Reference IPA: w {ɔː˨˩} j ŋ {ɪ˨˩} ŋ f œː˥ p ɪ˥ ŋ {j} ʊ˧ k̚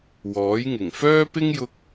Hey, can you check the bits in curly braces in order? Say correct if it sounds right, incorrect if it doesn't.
incorrect: ɔː˨˥, correct, correct

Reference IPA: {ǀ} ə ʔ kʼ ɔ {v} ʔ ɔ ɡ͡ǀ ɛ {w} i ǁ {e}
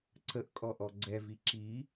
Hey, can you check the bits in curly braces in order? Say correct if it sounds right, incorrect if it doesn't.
correct, incorrect: none, incorrect: v, incorrect: i

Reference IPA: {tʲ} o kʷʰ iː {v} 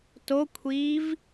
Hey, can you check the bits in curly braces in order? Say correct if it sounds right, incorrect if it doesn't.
incorrect: t, correct

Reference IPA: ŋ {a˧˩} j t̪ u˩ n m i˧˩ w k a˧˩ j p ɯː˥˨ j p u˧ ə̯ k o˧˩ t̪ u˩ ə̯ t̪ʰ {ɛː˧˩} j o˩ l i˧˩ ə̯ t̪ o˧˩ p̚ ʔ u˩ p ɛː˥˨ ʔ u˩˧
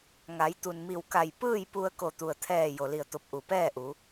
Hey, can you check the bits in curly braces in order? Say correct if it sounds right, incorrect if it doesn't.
incorrect: a˩˧, correct

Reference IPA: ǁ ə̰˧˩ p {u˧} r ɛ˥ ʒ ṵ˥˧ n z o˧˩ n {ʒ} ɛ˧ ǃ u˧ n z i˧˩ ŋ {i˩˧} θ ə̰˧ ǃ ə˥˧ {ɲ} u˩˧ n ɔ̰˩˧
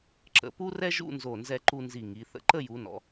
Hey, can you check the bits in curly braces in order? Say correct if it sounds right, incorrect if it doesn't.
incorrect: u˥, incorrect: z, correct, incorrect: j

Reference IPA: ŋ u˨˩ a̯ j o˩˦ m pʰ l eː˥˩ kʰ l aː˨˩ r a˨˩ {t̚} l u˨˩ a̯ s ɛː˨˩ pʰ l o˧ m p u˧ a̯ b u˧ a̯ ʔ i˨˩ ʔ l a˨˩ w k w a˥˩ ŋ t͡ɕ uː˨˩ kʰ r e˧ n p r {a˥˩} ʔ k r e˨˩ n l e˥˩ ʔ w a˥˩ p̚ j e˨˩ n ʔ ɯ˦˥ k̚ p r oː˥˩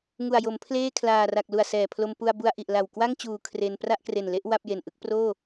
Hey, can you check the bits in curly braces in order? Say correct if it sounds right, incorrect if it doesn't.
incorrect: k̚, correct

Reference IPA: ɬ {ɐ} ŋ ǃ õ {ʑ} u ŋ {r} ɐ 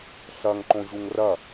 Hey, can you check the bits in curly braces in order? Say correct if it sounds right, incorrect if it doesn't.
correct, correct, correct

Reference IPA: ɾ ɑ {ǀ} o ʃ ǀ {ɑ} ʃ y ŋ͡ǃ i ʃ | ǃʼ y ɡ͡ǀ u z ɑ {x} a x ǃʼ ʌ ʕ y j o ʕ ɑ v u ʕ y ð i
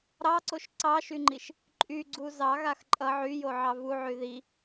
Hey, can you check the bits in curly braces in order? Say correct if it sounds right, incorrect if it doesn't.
correct, correct, incorrect: ɣ

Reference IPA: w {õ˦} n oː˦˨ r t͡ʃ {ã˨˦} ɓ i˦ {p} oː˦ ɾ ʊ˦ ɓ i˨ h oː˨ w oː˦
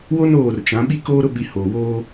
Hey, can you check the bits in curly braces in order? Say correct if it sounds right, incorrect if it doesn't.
incorrect: o˦, correct, incorrect: k

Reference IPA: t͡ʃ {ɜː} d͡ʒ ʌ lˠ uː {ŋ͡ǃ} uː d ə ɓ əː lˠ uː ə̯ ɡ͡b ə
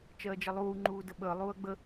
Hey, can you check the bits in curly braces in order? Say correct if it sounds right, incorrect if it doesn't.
correct, correct

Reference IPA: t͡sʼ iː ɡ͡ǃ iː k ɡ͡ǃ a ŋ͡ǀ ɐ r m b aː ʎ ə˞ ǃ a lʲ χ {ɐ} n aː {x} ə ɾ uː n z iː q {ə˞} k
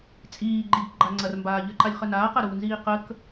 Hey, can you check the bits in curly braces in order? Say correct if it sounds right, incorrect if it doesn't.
incorrect: ə, incorrect: q, incorrect: ə

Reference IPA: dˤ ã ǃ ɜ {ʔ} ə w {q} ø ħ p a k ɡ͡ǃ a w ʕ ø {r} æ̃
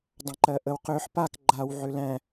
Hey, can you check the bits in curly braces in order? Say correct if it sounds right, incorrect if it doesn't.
correct, correct, incorrect: l

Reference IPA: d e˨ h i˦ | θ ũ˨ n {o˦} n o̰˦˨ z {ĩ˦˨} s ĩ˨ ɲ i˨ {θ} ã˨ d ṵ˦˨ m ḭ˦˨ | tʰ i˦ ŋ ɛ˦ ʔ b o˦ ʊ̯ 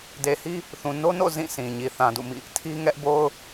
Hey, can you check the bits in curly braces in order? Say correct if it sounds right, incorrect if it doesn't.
correct, correct, correct

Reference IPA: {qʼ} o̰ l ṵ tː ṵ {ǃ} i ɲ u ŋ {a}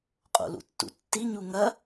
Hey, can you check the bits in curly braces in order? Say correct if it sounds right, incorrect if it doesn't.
correct, incorrect: tː, incorrect: ɐ

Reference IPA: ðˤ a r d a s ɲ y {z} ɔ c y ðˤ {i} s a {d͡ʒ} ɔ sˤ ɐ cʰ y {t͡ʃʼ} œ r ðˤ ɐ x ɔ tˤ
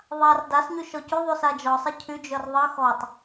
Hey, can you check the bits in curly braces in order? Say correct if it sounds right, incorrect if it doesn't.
incorrect: ʃ, incorrect: y, correct, incorrect: d͡ʒ

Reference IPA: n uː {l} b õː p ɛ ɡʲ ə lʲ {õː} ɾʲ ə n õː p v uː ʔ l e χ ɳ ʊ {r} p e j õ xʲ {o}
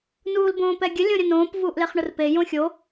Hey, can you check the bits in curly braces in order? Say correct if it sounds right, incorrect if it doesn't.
correct, incorrect: õ, correct, correct

